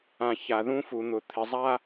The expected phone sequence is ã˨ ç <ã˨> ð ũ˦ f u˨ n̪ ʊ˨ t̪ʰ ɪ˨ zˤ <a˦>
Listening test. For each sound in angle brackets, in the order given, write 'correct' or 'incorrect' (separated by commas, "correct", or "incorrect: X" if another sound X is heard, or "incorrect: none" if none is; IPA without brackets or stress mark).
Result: incorrect: a˨, correct